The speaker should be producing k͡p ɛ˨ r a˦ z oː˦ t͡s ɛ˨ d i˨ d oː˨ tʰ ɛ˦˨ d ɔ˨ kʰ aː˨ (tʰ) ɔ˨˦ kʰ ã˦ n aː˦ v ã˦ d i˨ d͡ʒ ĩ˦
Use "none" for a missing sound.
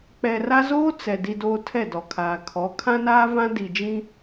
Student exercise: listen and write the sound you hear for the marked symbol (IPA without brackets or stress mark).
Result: kʰ